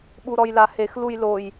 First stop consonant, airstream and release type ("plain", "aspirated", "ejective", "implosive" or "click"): implosive